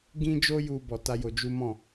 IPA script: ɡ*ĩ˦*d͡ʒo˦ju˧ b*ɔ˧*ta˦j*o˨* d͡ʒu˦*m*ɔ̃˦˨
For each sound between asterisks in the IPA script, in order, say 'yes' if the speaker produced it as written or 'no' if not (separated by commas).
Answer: yes, yes, no, yes